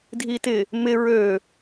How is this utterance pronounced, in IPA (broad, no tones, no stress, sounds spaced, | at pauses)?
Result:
dʱ i t ɪ | m ɪ ɹ ø